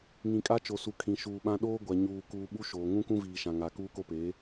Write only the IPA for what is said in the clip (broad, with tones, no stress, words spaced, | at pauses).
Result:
ŋĩ˨kʼa˦t͡ʃo˨su˨ kʰĩ˨ʃuː˨ɓã˦ ɗoː˦ ɡʷa˨ ɲuː˨kuː˨ ɓu˦ʃoː˨ ŋũ˦kũ˦viː˨ʃã˨ ŋa˨ kuː˦ko˦peː˨˦